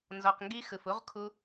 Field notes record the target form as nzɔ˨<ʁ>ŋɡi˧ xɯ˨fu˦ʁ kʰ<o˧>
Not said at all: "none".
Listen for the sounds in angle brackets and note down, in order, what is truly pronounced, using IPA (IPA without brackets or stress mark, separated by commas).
q, u˧